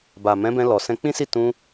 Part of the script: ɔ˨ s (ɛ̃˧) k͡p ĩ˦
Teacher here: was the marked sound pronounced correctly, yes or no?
yes